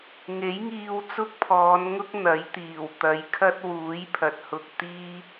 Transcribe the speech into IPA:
ŋ e˨˥ j ŋ iː˧ w t͡s ʊ˥ k̚ pʰ ɔː˨˧ n ŋ ʊ˥ k̚ n̪ ɐ˨˥ j t̪ iː˨˩ w t̪ ɐ˨˧ j kʰ ɐ˥ t̚ w uː˨˥ j pʰ ɐ˨ t̚ h ʊ˧ k̚ t̪ iː˥

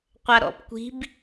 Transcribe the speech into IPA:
qʷ a ɾ ɔ̰ p kʷ i̤ b

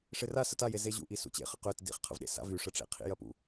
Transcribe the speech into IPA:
ʂ ɪ r a s ə t a j e z e ʑ ṵ ʔ i s ṵ t͡ɕ ḛ χ ə q ø t d ḭ χ qʰ ə̰ v ɗ ḛ s a̰ v y ʂ ə ʈ͡ʂ ḛ qʰ ḭ j ɐ p ṵ

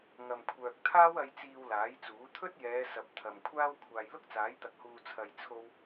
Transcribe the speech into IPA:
ŋ ɐ˨ m kʷʰ œː˨ k̚ t̪ʰ aː˥ w ɐ˧ j t͡s iː˧ w l aː˨˥ j t͡s uː˨˥ t̪ʰ ɵ˥ t̚ j ɛː˨˧ s ɐ˨ p̚ t̪ʰ ɐ˨ m kʷʰ aː˥ w kʷʰ aː˨ j l ʊ˥ k̚ t͡s aː˨˥ j t̪ ɐ˨ k̚ h uː˧ t͡sʰ ɐ˧ j t͡sʰ o˥ w

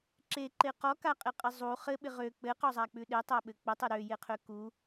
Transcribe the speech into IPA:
ǁ e ǃ e q ɔ k a qʼ ɪ qʼ ɘ zˤ u χ ɘ ɓ ɪ ʁ ø k͡p ɘ q ɔ zˤ a k͡p ʉ ɗ e tˤ a ɓ ɘ k͡p ɘ tˤ ɘ ɾ ø j e qʰ ø k u

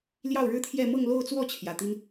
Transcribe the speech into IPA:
l j ɑ˥˩ ʊ̯ ɻ ɻ̩˥ t̪ʰ j ɛ˥˧ m ɤ˥˧ ŋ l o˥˧ ʊ̯ t͡s w ɔ˥˩ t͡ɕʰ j ä˨˩ t̪ i˥ n

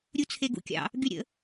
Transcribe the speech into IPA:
ɾʲ u t͡sʰ e ɡ ṵ kʲ ɑ̰ | ɡ y ɾʲ ə̰

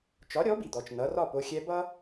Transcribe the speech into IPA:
t͡ʃ ɒ˩˥ ɾʲ ɔ˩˥ b i˩ d̪ ɔ˩ t͡ʃ n ʌ˩˥ r ɒ˥˩ p o˧ xʲ ɛ˧ b ʌ˥

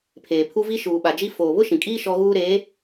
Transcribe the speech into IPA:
pʰ eː˨ pʰ u˦ v i˦ ʃ uː˨ ɓ a˨ d͡ʒ i˦ f oː˨ β ʊ˦ ʃ ĩ˨ kʼ iː˦ ʃ ɔ˦ ɣ uː˦ ɾ eː˨˦

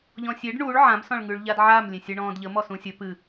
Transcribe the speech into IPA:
ʎ ɔ̃ sʲ e ɖ ɳ u ɭ ʕ ã m s ɔ̃ ɭ ŋ ʉ ɭ ʎ a d ʕ a m lʲ ẽ sʲ ɨ ɳ ɔ̃ː d ʎ ə m ɔ s ũ sʲ ə p ɨ

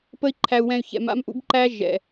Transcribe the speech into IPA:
p ə˦ i̯ ǃʰ æ˧ u̯ w ɛ̃˧ y̯ ç ɛ̰˨˦ m a̰˦ m ʔ ṵ˦ b ǃ æ˦ ʒ ɛ̰˨

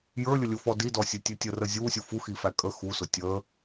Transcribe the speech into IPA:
j ə˞ lʲ ʊ lʲ ʊ f ɔ d i d ɔ sʲ ɛ tʲ ɛ tʲ ə r ə zʲ u sʲ u f u x i f æ kʼ ə x u s ʊ tʲ ə

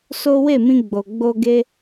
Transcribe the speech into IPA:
s o˦ w e˦˨ m ĩ˧ ɡ͡b o˨ ɡ͡b o˧ ɡ e˦

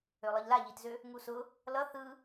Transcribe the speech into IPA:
ø lˠ ɯ ʎ l a ʎ i t z ø | ŋ u s ʊ | l ʌ θ ɯ

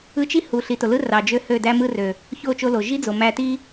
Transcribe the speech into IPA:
ɯ˧ t͡ʃ i˦ h u˨ ɬ i˨ t o˨ l ɯ˦ r ɑ˨ d͡ʒ ø˧ h ø˦˨ d æ˦ m ɯ˦ r ø˨ | ç o˦˨ t͡ʃ o˧ l o˨ ʒ i˦ d͡z o˨ m æ˧ t i˦

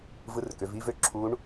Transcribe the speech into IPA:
v ɯ˧˥ r k ø˩˧ v i˥ v ø˥ ǁʰ u˧˥ ɳ

